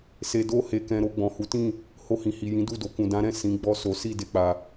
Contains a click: no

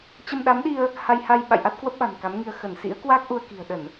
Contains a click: no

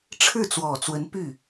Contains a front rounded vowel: yes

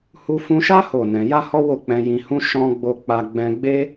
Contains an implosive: no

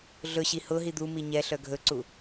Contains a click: yes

